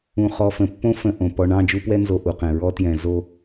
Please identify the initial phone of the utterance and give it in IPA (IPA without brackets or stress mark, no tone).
ũ